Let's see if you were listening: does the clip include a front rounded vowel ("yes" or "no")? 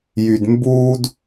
yes